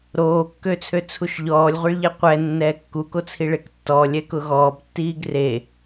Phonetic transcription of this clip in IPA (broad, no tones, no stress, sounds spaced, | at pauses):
ɾ oː kː ø t͡sʰ ø t͡sʰ u ʃ ʎ ɔː lʲ ʁʷ e ɭ ʎ ɛ qʷ ɛ nː ɛː kː u k o t͡sʰ i ɭ e k tː ɔː lʲ ɛ k ʊ ɣ ɔː b tː iː ɡ r e